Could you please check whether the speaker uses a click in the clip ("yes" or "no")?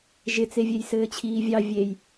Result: no